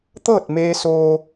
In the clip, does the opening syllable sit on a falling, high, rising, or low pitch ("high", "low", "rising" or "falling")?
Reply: falling